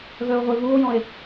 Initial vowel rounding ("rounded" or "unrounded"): rounded